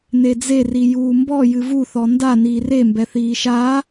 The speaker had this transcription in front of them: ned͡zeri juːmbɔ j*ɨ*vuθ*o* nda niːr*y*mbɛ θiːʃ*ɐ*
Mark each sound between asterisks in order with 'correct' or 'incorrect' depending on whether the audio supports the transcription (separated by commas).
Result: correct, incorrect, incorrect, incorrect